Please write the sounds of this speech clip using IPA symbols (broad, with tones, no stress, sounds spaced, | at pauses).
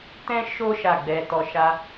t ɛ̃˦ ʃ o˦ ʃ a˦˨ ɡ͡b ɛ˧ t ɔ˧ ʃ a˦